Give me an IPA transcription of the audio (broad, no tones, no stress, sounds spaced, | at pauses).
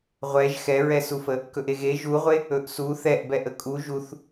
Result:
ʁʷ ɛ ʒ x ɛ ɹ ɛ s u f ə | k ɵ ʔ e ɣ e ʒ u ʁʷ e | ɵ ʔ s u θ ɛ ʔ b ɛ ʔ ə kʼ u ʒ u θ